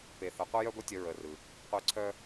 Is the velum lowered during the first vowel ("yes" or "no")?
no